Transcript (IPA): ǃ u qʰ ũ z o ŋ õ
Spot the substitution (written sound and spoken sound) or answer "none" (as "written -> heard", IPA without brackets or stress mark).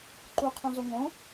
none